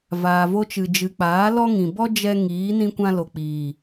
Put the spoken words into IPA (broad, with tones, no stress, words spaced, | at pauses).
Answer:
vaː˨vo˧t͡ʃɨ˨ d͡ʒɨ˨k͡paː˨˦lɔ˦ŋĩ˨ bɔ˦d͡ʒɛ˧ ŋiː˨˦nĩ˦ kʷã˦ lo˨k͡piː˨